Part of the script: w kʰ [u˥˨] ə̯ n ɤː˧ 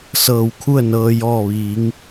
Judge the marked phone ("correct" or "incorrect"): correct